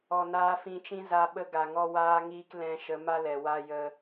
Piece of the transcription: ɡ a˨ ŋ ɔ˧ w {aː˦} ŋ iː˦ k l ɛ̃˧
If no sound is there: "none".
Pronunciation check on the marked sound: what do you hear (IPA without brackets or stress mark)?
aː˦